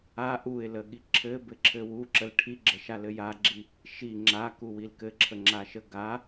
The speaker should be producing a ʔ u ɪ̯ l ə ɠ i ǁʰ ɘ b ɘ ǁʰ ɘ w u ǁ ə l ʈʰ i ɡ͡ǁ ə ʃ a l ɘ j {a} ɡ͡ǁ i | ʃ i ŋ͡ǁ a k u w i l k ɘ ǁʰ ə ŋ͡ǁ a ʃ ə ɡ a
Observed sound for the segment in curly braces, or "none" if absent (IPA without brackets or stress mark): a